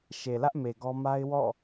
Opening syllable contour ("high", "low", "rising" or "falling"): low